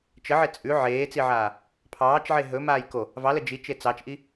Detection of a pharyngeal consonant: present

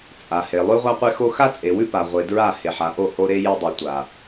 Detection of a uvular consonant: present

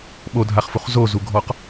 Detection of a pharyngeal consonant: absent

